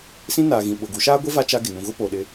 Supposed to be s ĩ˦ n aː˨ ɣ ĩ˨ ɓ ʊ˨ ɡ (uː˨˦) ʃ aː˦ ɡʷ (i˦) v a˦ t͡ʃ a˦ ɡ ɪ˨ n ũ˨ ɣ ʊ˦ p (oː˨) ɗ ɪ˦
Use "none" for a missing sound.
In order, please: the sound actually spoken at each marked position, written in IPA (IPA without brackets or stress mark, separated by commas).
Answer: u˨˦, i˦, oː˨